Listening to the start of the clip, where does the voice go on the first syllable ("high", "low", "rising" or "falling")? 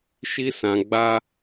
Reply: high